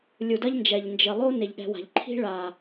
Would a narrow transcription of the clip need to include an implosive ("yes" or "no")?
yes